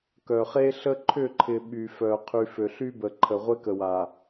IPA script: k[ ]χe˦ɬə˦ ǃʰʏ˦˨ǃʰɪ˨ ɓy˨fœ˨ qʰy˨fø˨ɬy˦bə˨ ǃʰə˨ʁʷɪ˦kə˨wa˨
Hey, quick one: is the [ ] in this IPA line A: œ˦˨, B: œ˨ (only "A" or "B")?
B